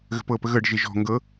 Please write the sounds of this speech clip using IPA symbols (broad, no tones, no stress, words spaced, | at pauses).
ɣə̤pɤ pəɣɤɖ ʒeʒɔ̤ ŋɡɤ